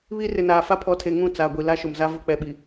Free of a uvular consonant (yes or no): yes